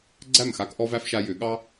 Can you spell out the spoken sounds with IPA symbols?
ɡ͡ǀ æ˥˨ m x a˦ k ʔ ɔ˦ v æ˦ f ʃ a˦ j ʏ˨˩˦ ɠ ɑ˦

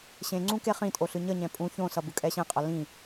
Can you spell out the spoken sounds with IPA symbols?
ɕ ẽ ŋ͡ǀ ũ k e χ ĩ tʼ o ɬ ɯ ɲ ʌ ɲ ɛ̃ pʼ ũ ç õ s ʌ b ɯ kʼ ɛ ɕ ẽ qʼ ʌ l ĩ

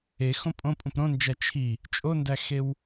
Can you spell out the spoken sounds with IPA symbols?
e x õ pʼ õ pʼ ũ p ɾ õ n d͡ʒ æ t͡ʃʰ i | t͡ʃʼ o n d æ x e w

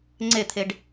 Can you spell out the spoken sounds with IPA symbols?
ŋ͡ǀ e t̪ʰ e ɖ

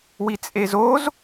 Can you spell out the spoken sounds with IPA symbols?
w i t͡sʼ e z o z

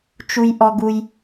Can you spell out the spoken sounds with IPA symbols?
t͡ʃ u˩ j ʔ ɔ˩ ɡ u˩ j

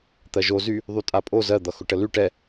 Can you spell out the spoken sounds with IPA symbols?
t̪ ɜ ʒ o z y | ðˤ y tʼ a pʼ o z ɜ d̪ ʌ x ʊ ʈ ə l y ʈ ɛ

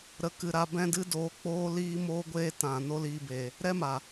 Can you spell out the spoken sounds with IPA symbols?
ɾ ə˨ k ɨ˨ ɾ a˧ b ɛ̃˦ d ɨ˦ d oː˧ k͡p oː˦ l iː˦ m oː˦ ɡʷ eː˦ t ã˨ n o˦ l iː˧ b eː˨ | ɾ ɛ˦ m a˨

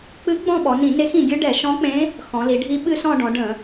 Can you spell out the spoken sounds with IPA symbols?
k͡p ɨ˧˥ ɡ͡b ɔ̃˦˨ ɓ ɔ˩˧ n ĩ˧˩˧ n e˧˥ x ĩ˩˧ ɡʲ ɨ˧˥ ɖ ɛ˧˩˧ ʃ ɔ̃˧˥ k͡p ẽ˧˥ | x ɔ̃˩˧ l i˩˧ ɖʱ i˧˥ ɓ ɨ˦˨ s ɔ̃˦˨ ɖ ɔ̃˩˧ ɖ ə̃˧˩˧

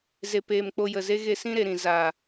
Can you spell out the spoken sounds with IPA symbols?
z e˨ p eː˨ m k͡p o˧ j ə˨ z e˦ ɣ e˧ s ĩ˦ ɾ e˨ ɾ ĩ˨ z a˨

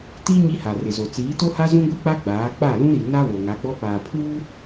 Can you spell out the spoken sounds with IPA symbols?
t i˦ ɲ i˦ h a˨ r ɪ˨ z o˨ t͡s iː˨˦ t o˦ h a˦ z ũ˦ ɡʷ i˦ k͡p a˦ ɡ͡b aː˨˦ k͡p a˦˨ l ũ˦ ɾ i˨ n a˦ β o˨ ŋ a˨˦ ɡ͡b ɔ˦ p aː˨ pʰ uː˦

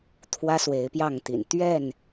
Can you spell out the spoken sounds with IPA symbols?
t̪ʰ w ä˦ s w e˨˦ ɪ̯ p j ɑ˥˨ ŋ t̪ ḭ˨˩ n t̪ ɥ ɛ˥˨ n

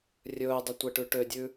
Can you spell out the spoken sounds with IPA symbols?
rʲ ɵː dˤ ɵ tʷ ɛ ʈ ʉ ʈ ø dʲ ʉ

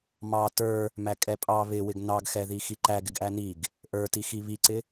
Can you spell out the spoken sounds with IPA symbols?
m ɑ t ə˞ | m æ kʼ ɛ pʼ ɑ β ɪ w ɪ ɡ n ɑ ɡ x ɛ ð i x i ǃ æ ɡ ɪ ɡ ʔ æ n i ɡ | ʔ ə˞ t i x i β i ǀ ɪ

